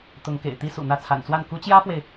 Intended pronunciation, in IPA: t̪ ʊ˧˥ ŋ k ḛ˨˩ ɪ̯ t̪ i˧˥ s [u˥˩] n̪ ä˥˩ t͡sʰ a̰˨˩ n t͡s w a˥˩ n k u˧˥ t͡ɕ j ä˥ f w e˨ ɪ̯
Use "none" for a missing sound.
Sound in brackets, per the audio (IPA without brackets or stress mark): ṵ˨˩